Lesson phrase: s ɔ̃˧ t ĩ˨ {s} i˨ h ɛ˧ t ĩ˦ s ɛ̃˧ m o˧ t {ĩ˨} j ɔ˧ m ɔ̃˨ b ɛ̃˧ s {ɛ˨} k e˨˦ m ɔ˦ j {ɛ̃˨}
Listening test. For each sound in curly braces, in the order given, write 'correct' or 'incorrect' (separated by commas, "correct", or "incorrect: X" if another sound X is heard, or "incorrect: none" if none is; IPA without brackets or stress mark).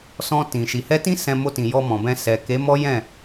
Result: incorrect: ʃ, correct, correct, incorrect: ɛ̃˦˨